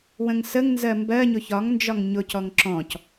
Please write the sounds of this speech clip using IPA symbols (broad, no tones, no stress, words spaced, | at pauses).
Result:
wə̃ŋsəŋ nzɜmbɜ ɲʊçɒŋ nd͡ʒɒŋɲʊ cɔŋǁɔ̃c